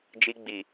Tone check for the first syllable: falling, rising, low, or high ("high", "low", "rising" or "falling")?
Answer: high